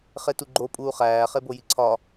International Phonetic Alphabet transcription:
χ e t u ɡ͡ǃ o pʼ uː χ æː χ e b o j i ǀʰ ɒ

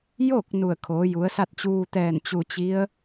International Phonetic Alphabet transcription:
j o˥˨ k̚ n u˧˩ ə̯ kʰ oː˩˧ j u˩˧ ə̯ s a˥˨ t̚ t͡ɕ uː˧ t̪ ɛː˧˩ n t͡ɕ u˧˩ t͡ɕ i˧˥ ə̯

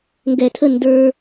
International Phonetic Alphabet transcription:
ŋ ɡ ɛ˧˩ tʰ ə˥˧ n d ə˞˧

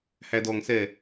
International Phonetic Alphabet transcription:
h æ d ɔ ŋ s ɛ

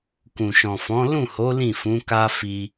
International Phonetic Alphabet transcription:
k ũ˨ ʃ ɔ̃˨ f ɔ̃˨˦ l ũ˦˨ h o˨˦ l ĩ˦˨ f ũ˨˦ k a˦ f i˧

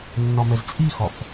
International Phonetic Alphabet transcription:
nː ɒ m ɛ z t͡sʼ i x ɒ f

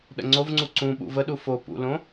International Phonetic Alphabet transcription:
ɗ ə̰ ŋ͡ǀ o v ŋ͡ǀ u ǀ ũ ɓ ṵ v ə ɗ u f o p ṵ l õ

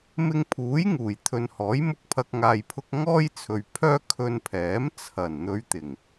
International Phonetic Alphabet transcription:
m ɪ˧ ŋ pʰ uː˨˥ j ŋ uː˨˩ j t̪ʰ ɵ˨ n h ɔː˨˥ j m ʊ˧ k̚ pʰ ɐ˨ k̚ ŋ aː˨ j pʰ ʊ˧ k̚ ŋ ɔː˥ j t͡sʰ ɵ˨ ɥ pʰ œː˥ kʰ ɵ˧ n pʰ ɛː˨˥ m t͡sʰ ɐ˨˩ n n̪ ɵ˨˧ ɥ t̪ ɪ˨˩ ŋ

